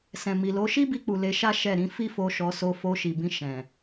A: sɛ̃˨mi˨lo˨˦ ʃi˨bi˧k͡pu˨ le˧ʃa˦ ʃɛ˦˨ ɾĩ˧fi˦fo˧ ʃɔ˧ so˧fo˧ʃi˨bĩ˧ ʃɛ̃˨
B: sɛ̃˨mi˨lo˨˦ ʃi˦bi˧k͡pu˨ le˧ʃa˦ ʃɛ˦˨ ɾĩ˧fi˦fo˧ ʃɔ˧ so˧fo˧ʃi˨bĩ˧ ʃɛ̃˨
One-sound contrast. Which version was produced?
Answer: B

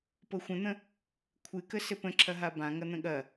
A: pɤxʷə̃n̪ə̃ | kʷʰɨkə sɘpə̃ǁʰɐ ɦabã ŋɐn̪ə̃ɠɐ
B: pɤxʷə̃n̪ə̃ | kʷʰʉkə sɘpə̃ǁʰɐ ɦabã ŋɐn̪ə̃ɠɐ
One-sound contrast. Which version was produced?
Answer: A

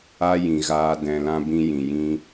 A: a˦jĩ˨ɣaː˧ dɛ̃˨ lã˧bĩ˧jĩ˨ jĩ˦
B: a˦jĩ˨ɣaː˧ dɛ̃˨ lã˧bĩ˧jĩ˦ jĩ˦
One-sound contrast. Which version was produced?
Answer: A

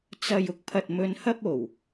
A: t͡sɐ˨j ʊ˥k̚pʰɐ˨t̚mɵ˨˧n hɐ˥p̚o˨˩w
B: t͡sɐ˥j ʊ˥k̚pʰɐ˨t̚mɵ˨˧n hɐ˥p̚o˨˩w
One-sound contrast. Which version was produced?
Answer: A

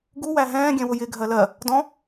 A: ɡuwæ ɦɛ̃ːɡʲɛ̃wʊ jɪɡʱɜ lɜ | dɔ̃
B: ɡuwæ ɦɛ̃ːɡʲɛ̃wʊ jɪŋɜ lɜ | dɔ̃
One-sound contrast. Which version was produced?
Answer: A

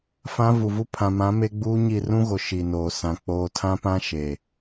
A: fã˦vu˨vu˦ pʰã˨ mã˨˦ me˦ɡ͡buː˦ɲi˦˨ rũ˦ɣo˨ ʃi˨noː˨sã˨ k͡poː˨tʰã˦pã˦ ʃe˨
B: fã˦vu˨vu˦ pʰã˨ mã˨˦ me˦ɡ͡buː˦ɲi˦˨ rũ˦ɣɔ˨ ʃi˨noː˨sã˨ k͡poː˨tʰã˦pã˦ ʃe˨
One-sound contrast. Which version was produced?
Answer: A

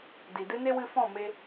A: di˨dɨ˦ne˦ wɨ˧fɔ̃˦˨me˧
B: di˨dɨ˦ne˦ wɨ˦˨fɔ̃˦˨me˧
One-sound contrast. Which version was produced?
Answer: A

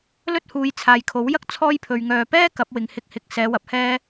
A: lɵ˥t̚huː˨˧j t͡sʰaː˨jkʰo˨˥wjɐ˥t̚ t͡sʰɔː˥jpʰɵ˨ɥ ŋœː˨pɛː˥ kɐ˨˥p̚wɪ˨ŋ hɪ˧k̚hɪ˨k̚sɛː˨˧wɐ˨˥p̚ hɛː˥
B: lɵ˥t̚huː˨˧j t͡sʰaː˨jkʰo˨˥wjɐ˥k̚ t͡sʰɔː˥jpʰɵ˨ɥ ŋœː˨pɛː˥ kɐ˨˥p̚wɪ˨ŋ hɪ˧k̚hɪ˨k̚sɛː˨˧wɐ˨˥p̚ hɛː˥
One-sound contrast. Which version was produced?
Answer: B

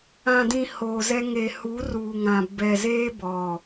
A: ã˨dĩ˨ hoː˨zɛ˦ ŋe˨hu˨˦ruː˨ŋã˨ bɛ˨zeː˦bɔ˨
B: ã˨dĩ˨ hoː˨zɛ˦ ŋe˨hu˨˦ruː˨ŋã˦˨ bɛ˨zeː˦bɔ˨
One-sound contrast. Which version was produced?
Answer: A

